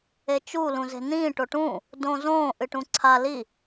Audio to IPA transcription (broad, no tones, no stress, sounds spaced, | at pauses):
e t͡ʃ u l ũ z e̤ n ĩː ʈ o ʈ ũ | d õː z õː ʔ ɨ ʈ ũ ǀʰ a l i